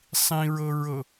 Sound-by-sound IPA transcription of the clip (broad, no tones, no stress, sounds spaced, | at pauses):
sˤ ĩ ɹ ɤ ɹ ɤ